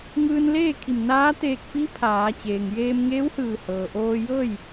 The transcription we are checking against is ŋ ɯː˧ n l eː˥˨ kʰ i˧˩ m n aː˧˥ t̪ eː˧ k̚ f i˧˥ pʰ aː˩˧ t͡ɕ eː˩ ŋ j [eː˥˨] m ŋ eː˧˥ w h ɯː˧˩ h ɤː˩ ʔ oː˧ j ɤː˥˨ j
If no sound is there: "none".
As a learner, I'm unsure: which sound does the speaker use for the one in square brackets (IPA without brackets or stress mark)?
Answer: eː˧